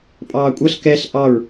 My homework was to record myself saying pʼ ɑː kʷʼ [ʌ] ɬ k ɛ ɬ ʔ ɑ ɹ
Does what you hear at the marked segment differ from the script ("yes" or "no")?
no